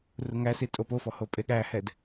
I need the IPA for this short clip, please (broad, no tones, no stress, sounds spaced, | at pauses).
r u ŋ æ s i tʼ o p o f ɔ h o pʼ e ɠ æ h ɛ d